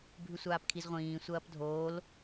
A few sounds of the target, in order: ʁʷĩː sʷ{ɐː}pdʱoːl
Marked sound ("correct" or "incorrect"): correct